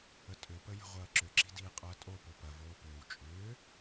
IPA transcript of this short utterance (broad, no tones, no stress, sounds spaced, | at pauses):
ə tʼ ʏ p ə j ə̤ ʁʷ ɐː ǁ ʏ ǁ i̤ d iː qʼ ɐː tʼ o p o p ɐ v oː p ʏː w t͡ʃʼ ʏː